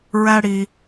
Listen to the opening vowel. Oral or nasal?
oral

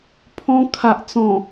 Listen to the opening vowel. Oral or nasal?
nasal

